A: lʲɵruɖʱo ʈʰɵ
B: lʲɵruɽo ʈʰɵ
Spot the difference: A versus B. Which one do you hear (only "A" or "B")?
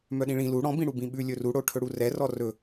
B